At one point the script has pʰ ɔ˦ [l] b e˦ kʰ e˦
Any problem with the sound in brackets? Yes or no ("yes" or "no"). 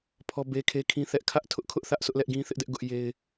yes